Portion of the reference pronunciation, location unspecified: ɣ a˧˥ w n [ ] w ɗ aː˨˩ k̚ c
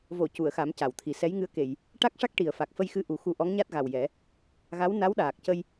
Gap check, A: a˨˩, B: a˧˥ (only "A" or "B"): B